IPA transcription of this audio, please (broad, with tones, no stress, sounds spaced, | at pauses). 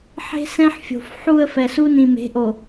ħ e̤˦ s ɛ̃˦ ħ fʲ o̤˨ f ħ u˨ ə̯ f ɛ˨ s u˦ n ĩ˨ m e̤˨˦ ʔ o˨